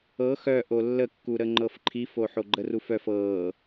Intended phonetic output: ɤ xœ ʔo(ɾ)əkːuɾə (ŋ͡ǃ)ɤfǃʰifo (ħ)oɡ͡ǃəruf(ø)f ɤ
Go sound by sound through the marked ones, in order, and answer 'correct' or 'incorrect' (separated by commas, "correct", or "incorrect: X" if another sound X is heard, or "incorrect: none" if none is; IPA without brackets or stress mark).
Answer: incorrect: lː, correct, correct, incorrect: œ